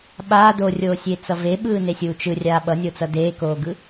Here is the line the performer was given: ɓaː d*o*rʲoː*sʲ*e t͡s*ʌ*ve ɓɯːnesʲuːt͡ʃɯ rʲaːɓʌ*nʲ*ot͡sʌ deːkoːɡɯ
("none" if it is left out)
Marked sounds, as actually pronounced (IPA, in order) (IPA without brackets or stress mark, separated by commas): o, sʲ, ʌ, nʲ